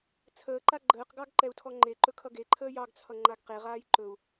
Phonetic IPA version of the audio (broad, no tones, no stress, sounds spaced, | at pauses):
t͡sʰ əː ǃ a ɡ͡ǃ əː q ɡ ɑ ɡ ǃ ɛ u̯ tʰ ɔ ŋ͡ǃ e ǃ ɵ kʰ ʌ ɡ e ǃʰ əː j ɑ ɡ t͡sʰ ʌ ŋ͡ǃ a ɡ q e ʁ aː j ǃ ɵ u̯